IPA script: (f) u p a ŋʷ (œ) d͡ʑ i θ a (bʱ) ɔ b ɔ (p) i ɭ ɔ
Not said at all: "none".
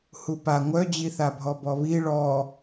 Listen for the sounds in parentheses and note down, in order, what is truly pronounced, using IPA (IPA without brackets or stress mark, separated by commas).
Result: h, œ, bʱ, β